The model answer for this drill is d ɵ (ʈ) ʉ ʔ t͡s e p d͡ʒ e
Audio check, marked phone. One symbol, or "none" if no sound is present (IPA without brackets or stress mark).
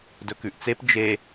k